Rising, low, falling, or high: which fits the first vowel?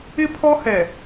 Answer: high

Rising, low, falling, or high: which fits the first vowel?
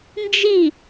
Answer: falling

